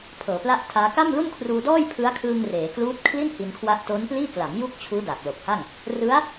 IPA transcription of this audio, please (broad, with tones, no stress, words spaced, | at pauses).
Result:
pʰɤː˩˦pla˥˩ʔtʰaː˦˥ ka˥˩mlu˥˩n kʰruː˧dɔː˥˩jpʰɯ˦˥a̯kʰɯː˧ŋ reː˩˦kluː˦˥t̚ kʰli˥˩n hi˧nkʰwa˦˥ʔ to˦˥npliː˥˩kla˩˦m ju˥˩k̚t͡ɕʰuː˦˥da˨˩k̚ lo˨˩k̚ha˥˩ŋ | rɯ˦˥a̯